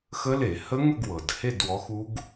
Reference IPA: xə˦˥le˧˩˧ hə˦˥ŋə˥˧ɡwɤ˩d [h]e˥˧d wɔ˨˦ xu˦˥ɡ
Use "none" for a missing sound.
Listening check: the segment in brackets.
h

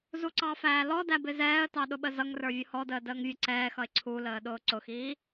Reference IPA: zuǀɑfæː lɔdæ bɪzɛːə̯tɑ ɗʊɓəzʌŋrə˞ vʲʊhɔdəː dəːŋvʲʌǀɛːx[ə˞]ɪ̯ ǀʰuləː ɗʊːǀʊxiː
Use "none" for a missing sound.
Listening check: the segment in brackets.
ʌ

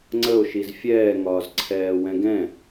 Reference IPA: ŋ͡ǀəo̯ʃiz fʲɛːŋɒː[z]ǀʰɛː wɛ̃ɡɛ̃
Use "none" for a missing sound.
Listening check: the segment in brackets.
z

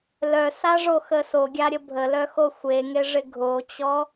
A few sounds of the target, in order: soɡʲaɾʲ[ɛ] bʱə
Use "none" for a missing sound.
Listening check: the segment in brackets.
ə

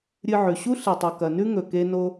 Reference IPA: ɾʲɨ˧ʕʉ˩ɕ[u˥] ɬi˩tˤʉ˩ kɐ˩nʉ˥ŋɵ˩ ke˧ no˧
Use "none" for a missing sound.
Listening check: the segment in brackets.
u˥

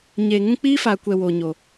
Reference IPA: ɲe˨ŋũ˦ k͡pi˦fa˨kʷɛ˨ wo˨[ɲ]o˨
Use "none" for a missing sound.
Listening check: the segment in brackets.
ɲ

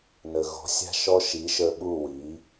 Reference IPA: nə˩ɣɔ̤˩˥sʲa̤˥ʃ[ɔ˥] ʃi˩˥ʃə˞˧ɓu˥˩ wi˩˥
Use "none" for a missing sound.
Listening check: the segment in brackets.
ɔ˥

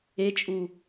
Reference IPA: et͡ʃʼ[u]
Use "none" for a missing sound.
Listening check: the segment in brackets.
u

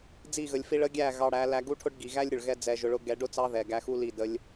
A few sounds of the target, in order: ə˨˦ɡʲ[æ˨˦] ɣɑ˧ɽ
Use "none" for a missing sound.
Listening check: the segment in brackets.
æ˦˨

